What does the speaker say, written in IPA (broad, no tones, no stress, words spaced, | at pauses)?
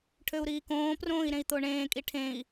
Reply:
ʈʰøu̯ɾiːkõːprõːi̯ ɾẽi̯t̪oɳẽːkʼi ʈʰẽi̯